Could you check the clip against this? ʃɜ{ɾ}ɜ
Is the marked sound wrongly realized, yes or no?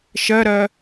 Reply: no